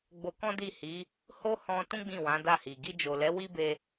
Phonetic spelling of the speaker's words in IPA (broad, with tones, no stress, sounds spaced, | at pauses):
ɡ͡b o˧ k ɔ̃˦ d i˦˨ h i˨˦ | h o˦ h ɔ̃˧ t ũ˦ ɡ͡b ĩ˦˨ w ã˨˦ d a˦˨ h i˨ ɡ i˧ d͡ʒ o˨ l ɛ˨˦ w i˦ b e˧